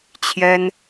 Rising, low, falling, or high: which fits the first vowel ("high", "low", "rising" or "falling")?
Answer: high